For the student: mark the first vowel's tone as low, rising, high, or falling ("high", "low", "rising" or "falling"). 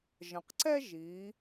low